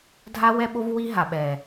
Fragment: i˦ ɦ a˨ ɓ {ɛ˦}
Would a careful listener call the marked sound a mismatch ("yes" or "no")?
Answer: yes